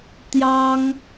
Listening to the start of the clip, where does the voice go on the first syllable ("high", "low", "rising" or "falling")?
high